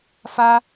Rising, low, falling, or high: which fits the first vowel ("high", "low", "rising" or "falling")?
high